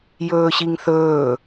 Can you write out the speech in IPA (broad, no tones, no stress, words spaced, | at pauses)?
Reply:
jɵːɕiŋθɵː